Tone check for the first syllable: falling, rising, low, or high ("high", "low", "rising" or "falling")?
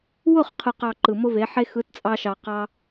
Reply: falling